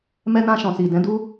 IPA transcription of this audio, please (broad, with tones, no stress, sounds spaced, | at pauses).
m ɛ˧ n ã˧ ʃ ɔ̃˨ s i˨ d ɛ̃˨˦ d u˦